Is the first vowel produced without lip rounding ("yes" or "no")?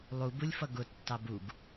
no